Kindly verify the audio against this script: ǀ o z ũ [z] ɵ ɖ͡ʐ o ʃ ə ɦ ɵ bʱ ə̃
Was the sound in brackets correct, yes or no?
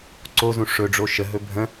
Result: no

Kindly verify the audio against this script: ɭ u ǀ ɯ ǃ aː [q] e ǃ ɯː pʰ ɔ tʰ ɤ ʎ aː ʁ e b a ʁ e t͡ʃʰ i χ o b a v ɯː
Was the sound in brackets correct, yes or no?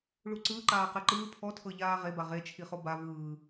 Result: yes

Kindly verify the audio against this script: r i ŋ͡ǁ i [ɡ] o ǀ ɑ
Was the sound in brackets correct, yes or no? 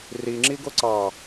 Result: yes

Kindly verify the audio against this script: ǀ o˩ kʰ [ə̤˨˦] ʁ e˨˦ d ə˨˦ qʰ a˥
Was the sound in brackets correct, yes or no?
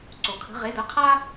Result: yes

